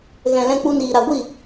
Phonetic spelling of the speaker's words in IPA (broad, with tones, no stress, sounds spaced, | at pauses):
ɣ ɛ̃˨ l ɛ̃˧ k͡p u˧ n iː˨ ɾ a˨ ɡʷ i˦˨